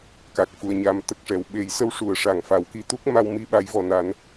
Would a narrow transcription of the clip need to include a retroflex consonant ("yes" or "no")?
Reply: yes